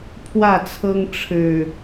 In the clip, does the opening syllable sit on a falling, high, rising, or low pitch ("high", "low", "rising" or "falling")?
falling